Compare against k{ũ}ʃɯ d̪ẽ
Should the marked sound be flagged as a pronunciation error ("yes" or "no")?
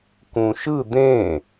no